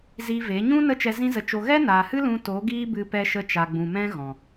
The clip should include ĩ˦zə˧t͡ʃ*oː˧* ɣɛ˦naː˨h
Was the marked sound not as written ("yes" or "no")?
yes